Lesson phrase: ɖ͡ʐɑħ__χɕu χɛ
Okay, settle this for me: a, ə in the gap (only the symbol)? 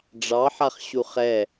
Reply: a